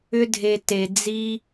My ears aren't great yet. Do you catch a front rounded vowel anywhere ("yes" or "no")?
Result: yes